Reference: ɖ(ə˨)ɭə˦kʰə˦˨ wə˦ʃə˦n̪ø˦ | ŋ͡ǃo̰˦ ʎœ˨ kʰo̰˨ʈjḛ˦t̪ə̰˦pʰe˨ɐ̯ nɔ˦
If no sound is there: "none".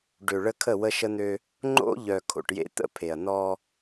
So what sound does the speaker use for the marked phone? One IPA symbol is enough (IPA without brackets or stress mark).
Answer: ø˨